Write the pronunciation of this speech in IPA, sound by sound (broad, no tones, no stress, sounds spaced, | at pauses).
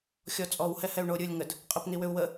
xʲ ɔ t͡sʼ ɔ w h ɛ h ɛ u̯ ɳ o ɾʲ ɯ lʲ ŋ ə d | qʼ ə p n i w ʏ u̯ w ə